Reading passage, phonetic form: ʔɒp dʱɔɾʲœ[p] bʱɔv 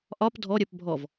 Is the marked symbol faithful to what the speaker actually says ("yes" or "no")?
yes